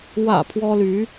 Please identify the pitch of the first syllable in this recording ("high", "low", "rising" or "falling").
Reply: low